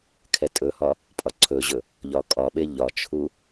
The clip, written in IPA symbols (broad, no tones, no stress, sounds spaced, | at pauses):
kʰ ɛ tʼ ɵ h ɒ | pʼ ɒ ǀʰ ɵ ʑ ɵ | ʎ ɒ kʼ ɒ ɓ e ʎ ɒ t͡ʃʰ u